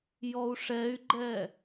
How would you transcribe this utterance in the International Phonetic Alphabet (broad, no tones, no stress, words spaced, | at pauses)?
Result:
jɔu̯ʂɛy̯ɡ͡ǃɛ